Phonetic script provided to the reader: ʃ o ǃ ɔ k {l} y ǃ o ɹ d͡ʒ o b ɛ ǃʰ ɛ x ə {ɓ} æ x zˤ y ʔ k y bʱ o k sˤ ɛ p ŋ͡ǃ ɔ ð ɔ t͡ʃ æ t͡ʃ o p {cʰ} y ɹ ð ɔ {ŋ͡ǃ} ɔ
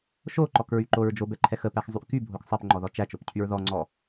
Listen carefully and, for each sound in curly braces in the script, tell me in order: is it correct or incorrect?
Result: incorrect, incorrect, correct, incorrect

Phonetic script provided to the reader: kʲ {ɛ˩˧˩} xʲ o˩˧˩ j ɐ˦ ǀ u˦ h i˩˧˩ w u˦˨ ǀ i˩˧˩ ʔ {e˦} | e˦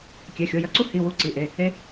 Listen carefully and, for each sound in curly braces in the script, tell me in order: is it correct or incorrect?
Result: correct, incorrect

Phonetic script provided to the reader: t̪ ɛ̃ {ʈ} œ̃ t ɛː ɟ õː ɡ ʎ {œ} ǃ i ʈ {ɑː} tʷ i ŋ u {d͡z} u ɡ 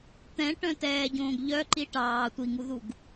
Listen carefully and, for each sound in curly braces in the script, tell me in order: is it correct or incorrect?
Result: correct, correct, correct, incorrect

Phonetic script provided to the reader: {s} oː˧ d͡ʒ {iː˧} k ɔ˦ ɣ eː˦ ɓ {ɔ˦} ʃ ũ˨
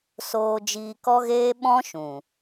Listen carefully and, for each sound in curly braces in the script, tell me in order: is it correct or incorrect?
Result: correct, correct, incorrect

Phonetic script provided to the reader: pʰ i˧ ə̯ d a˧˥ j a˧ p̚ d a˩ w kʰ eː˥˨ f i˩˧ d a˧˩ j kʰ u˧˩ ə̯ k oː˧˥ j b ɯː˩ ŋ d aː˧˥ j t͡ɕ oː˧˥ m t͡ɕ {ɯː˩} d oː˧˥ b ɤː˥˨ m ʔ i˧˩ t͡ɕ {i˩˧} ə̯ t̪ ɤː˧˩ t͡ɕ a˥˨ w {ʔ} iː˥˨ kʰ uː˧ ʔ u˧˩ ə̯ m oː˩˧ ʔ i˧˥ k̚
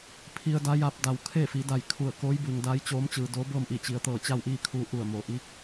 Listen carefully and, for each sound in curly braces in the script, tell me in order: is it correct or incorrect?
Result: correct, correct, correct

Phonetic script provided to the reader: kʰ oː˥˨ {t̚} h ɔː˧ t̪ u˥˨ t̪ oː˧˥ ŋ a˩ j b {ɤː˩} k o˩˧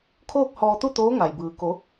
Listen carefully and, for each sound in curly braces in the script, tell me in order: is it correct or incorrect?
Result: incorrect, incorrect

